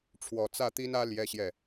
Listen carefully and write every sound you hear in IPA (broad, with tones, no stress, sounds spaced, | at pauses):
ʈ͡ʂʰ w ɔ˨˩ t͡s ä˥˩ t̪ i˥ n ä˥ l j ɛ˥ ɕ j ɛ˥˩